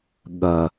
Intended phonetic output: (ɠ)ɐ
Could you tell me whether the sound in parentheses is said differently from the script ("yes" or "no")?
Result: no